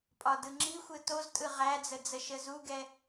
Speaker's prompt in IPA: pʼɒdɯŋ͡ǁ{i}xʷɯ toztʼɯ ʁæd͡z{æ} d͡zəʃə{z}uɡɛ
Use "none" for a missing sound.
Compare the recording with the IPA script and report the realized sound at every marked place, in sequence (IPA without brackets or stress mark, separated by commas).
i, ə, z